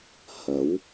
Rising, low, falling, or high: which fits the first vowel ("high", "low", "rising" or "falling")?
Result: rising